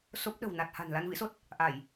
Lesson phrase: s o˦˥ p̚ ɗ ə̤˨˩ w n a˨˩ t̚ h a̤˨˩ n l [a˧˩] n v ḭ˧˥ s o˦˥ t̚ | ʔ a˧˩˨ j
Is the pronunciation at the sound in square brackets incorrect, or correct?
incorrect